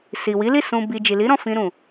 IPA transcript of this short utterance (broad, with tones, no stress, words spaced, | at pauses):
si˨wi˨˦li˦˨ sũ˨bi˨ d͡ʒi˨li˨˦ɾɔ̃˦˨ fĩ˧ ɾũ˨